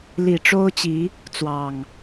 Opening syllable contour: low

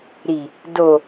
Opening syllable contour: low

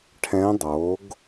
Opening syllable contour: rising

